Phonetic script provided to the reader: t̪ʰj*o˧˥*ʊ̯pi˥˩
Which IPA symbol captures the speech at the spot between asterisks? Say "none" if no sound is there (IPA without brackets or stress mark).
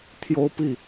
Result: o˥